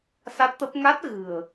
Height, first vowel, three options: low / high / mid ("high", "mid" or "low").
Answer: low